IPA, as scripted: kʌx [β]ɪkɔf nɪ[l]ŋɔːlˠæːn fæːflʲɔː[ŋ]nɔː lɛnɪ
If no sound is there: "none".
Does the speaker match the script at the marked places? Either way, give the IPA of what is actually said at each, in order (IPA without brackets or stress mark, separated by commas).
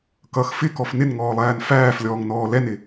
f, n, ŋ